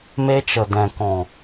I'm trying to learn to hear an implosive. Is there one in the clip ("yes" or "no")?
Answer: no